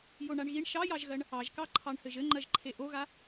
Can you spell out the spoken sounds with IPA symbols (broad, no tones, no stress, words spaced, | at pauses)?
joɳaɳɣiɳ ʃɑjɑʒɣɜɳ | ɑʒkɑǃʰɑɳ hɘʒɘŋ͡ǃɜʒǃʰe ʔoɣa